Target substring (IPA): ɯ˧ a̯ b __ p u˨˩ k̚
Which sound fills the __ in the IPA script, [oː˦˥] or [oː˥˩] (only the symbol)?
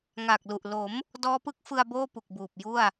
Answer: oː˥˩